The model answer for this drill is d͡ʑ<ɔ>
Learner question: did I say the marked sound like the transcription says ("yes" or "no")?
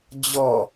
yes